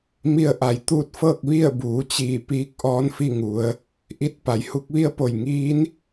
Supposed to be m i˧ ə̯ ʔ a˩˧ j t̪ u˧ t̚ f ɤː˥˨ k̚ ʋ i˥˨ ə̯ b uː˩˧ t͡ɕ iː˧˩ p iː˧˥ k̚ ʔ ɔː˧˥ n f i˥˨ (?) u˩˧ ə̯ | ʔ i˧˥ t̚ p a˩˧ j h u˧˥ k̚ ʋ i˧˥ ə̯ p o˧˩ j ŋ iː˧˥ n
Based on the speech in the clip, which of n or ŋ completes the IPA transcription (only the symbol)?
ŋ